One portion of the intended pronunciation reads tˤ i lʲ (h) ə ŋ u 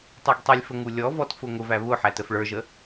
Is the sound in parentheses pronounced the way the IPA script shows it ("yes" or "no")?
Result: no